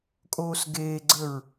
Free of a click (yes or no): no